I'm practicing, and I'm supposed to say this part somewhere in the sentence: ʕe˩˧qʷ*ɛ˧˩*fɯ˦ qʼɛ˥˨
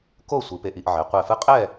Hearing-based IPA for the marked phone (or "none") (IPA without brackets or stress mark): ɛ˧˩